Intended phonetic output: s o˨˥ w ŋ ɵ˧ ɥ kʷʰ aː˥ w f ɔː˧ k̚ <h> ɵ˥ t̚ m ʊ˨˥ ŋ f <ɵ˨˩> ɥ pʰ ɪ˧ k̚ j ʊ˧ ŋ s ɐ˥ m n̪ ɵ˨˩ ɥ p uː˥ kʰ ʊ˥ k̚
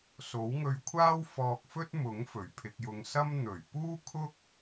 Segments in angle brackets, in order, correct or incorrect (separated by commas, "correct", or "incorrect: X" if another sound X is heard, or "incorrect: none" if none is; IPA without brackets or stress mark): incorrect: f, correct